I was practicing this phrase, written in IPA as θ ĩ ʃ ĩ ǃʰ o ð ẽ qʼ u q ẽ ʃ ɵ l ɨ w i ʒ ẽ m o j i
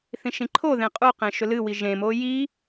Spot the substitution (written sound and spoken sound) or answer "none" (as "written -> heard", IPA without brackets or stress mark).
none